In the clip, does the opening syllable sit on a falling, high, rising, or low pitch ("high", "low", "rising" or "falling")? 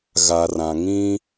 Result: low